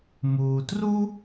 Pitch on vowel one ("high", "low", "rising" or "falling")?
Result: low